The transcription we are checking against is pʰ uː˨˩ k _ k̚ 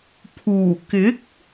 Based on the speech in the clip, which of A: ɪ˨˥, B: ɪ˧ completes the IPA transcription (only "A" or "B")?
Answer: A